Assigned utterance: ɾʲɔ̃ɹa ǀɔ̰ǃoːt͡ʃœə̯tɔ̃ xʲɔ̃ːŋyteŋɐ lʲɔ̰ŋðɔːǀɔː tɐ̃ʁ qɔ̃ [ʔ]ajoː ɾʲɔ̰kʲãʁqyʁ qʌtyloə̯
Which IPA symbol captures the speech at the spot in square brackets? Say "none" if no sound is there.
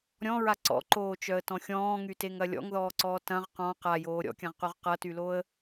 q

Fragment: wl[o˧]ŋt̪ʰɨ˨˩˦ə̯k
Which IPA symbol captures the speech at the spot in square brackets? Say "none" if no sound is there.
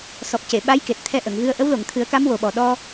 o˨˩˨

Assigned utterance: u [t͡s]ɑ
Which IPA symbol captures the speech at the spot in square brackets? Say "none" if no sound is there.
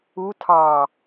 tʰ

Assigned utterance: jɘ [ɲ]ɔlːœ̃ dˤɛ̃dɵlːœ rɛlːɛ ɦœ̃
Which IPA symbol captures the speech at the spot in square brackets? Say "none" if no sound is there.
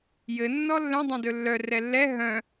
nː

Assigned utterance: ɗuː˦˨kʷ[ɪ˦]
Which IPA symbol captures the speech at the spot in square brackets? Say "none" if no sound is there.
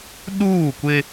ɪ˦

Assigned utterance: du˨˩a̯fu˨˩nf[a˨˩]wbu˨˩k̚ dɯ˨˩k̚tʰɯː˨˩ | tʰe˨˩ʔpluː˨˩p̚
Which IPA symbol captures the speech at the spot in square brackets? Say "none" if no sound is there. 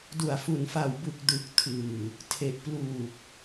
a˨˩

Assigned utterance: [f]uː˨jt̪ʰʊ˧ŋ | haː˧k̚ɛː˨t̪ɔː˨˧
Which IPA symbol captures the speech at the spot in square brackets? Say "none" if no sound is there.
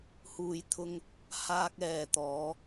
h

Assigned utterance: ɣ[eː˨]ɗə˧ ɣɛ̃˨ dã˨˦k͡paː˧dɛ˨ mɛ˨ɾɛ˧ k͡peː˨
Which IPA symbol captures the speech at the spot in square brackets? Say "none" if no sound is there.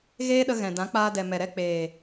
eː˦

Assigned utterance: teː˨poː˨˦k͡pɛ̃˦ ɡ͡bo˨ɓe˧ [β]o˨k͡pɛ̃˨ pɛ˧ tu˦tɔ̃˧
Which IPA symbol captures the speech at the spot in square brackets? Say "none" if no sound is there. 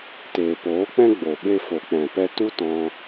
f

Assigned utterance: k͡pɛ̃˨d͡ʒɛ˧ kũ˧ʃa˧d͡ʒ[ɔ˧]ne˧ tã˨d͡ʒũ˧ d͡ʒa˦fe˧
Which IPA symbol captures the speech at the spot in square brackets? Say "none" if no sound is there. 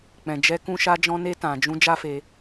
ɔ̃˧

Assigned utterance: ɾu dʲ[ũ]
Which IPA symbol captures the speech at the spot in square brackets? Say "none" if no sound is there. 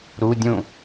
ũ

